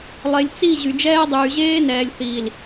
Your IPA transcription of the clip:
lˠ e˨ lʲ t͡s i˦˨ ʑ y˨ d͡ʒ ɛː˦ dˤ yː˨ ʑ eː˦ n ɛː˨ lʲ θ iː˨ l

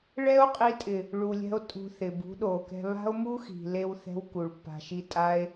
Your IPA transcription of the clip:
ɭ ɛ˦ o̯ qʼ i˧ tʼ ɪ˨ | ɭ u˨ lʲ ɛ̤˧ o̯ tʼ ṳ˧ θ ɪ˨ b ṳ˨˦ ɗ o˨ k ɛ̤˧ β a̤˦ o̯ m u˦ x i̤˨ l e˧ w θ ɛ̤˧ w k u˨ ɭ pː a̤˨ ʃ i˧ tʼ a˧ e̯

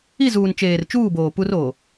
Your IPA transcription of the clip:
i˦˨ z uː˨ n t͡ʃ eː˨ r t͡ʃ uː˦˨ b oː˨ p u˦ r o˨

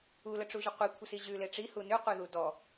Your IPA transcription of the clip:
u l ə ʈ͡ʂ u ʒ ə qʷ i kʷʰ ə s i ʑ ʉ l e ʈ͡ʂ i h u n ʉ qʷ e ð u d ɔ

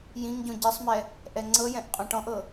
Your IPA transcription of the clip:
j ĩ ŋ ɟ õ ɟ i sˤ m ɛ | ʔ ɛ ŋ͡ǀ ɤ j ɛ̃ ʔ qʼ ɔ̃ ʈ ɔ̃ ʔ ɤ

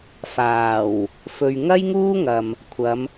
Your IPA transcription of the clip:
f aː˨˩ w | f ɵ˨ ɥ ŋ ɐ˥ j ŋ uː˥ ŋ ɐ˨ m | kʷʰ ɐ˨˧ m

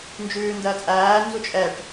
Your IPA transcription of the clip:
n d͡ʒ ʉː n d ɜ t͡sʼ æː n z u t͡ʃʼ ɛ ʈ

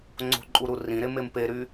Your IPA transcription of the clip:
ŋ͡ǀ o̤ ǃʼ u ɾ u r ĩ ɾ e m e m p e ɾ y

